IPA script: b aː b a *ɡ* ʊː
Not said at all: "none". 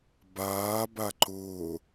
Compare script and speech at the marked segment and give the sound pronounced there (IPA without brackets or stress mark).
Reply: ǃ